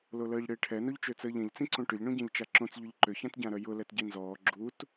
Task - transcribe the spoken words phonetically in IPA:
l o l əː ʎ ɽ ɪː ʈʰ ɛ n o ʎ t͡ʃ ø t͡s əː ʎ ɛ̃ ʎ t͡s ĩ ǀ õ ʈ ʏ ʎ ɳ õ ɟ ɛ̃ ʎ t͡ʃ a ǁ õ t͡s ʎ ʏ ʎ ǃ ʏ ç ã t ɟ ã ɾ œ j ʊ l ɛ t ɟ i n z ɔː ɡ͡ǁ u t

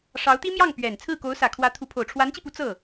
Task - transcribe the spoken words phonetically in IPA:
ʂ ɑ˧˥ ʊ̯ t̪ i˥ m j ɑ˥˩ ŋ p ɥ ɛ˨˩ n t͡sʰ ɹ̩˥˩ k o˧˥ ʊ̯ s ä˨˩ kʰ w ä˧˥ t̪ʰ u˧˥ pʰ o˨˩ ʊ̯ ʈ͡ʂʰ w a˧˥ n t͡ɕ i˧ p u˧˥ t͡s ɤ˥˩

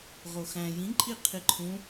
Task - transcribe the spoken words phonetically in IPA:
ʁ o x æ̃ j ĩ ǃʼ i qʰ i ǃʰ ũ

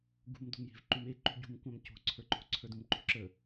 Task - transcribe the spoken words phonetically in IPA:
ɡ ṳ m d o̤ m j e̤ v ǃ u m e ǃ ṳ ɟ ṳ m kʷ ã m c o̤ ǀʰ ə˞ ǃ o̤ ǀʰ ə˞ d ũ m ǃ o̤ ǁ ə

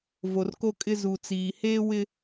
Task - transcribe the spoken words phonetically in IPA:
v o˨ r k o˦ kʼ ɪ˦ z u˨ t͡s iː˨ h eː˦ w ɪ˦

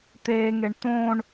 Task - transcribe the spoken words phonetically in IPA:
t̪ eː ŋ e ɳ t̪ õ ɳ

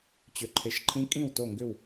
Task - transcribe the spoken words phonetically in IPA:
t͡ɕ ʏ˩ ǃʰ e˩˧ ʃ ǃʰ ĩ˧˥ kʼ ĩ˥˩ w t o˥˩ ŋ ɡ ʏ˥˩ w

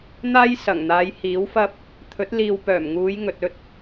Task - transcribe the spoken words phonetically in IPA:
n̪ aː˥ j s ɐ˨˩ ŋ n̪ aː˨˧ j h iː˨˥ w f ɐ˥ p̚ | t̪ʰ ɵ˨˥ t̚ l iː˨ w p œː˨˩ m ŋ uː˨˧ j ŋ ɵ˨ t̚ ɵ˥ t̚

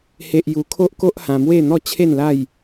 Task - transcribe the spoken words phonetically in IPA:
h e˦ ʔ j u˧ kʰ o˦ ʔ k o˦ ʔ h ã˧ m w e˥˧ n̪ ɔ˥˧ t͡ɕʰ e˥˧ n l a˥˧ j

